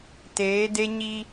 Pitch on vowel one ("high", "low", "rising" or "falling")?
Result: rising